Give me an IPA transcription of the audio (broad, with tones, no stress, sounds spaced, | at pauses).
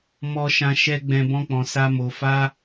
m ɔ˨ ʃ ã˨ ʃ ɛ˧ ɡ͡b ɛ̃˨ b ɔ̃˧ k͡p ɔ̃˨ s a˧ m o˨ f a˧